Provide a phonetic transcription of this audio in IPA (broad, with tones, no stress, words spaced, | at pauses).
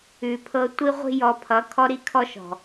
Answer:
ʉ˨pʰɤ˧ tʷi˦ʁʷi̤˦jɔ˧pʰʌ˨˦ kʰɔ˦ɾi˦kʰɔ˦ʃɔ̤˨